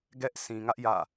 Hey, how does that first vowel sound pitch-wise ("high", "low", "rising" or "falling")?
high